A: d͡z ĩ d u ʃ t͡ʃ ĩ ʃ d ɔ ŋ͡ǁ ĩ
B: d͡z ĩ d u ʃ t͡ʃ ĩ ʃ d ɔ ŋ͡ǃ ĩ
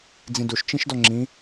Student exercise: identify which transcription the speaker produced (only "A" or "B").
A